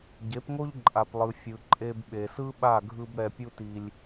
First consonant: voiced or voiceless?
voiced